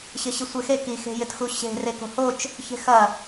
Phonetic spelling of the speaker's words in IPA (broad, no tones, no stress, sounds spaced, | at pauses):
ɕ ɪ ɕ i sʷ e x e k i x e̤ j ɪ t x u ɕ e̤ r e k o̤ h o t͡ʃ | ç e̤ x ɐ